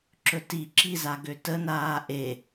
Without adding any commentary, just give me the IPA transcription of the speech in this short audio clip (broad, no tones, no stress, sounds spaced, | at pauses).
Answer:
ǁ ɵ t i ǁ i z a ɡ ø t ə n aː ʔ e